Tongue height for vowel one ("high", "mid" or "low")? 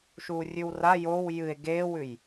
high